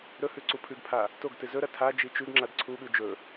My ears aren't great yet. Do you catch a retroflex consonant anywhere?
no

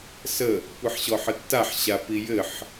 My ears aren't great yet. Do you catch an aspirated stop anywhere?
no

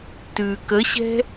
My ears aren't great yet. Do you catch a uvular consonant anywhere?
no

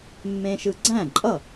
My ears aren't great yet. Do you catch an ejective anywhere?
yes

